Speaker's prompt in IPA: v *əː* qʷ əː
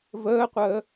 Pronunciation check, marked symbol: correct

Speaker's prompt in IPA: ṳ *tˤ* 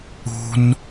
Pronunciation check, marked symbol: incorrect: n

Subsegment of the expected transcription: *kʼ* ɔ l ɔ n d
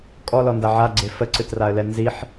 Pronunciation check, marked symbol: correct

